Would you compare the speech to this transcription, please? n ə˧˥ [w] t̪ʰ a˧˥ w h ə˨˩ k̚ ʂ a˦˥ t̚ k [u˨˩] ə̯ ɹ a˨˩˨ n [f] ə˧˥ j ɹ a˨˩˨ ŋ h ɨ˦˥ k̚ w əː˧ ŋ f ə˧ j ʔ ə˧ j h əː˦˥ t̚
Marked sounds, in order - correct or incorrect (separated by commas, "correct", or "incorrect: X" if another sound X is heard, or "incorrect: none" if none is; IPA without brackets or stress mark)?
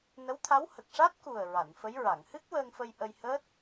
correct, correct, correct